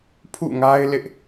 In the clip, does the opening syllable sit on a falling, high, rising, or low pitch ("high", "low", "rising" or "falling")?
falling